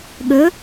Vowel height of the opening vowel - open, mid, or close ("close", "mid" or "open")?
mid